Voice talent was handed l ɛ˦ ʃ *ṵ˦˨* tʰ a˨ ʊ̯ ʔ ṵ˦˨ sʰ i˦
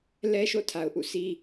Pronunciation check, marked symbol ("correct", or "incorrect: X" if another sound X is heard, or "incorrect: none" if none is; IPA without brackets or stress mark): incorrect: o̰˦˨